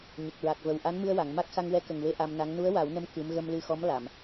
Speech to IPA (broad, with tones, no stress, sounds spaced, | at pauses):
ɲ ə˨˩ k̚ ɹ a˨˩ k̚ v ə˨˩ w ʔ a˧˥ n m ɨ˧ ə̯ w a˨˩˨ ŋ m a˦˥ k̚ x a˧ ŋ w ɛ˧˥ k ə˨˩ ŋ w e˧ ʔ a˧ m n a˧˥ ŋ n u˧˥ ə̯ w a˨˩˦ w n ə˧ m k ɨ˧˥ m ɣ ə˧ m l ɨ˧ x ɔ˧˥ m l a˨˩˨ m